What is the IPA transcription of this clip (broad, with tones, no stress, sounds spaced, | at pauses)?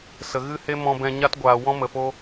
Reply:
s ə˧ ɣ ɨ˦ h e˦ m ɔ̃˧ b ɛ̃˧ ɲ a˦ t ɡʷ aː˧ w ɔ̃˦ m ə˧ f o˦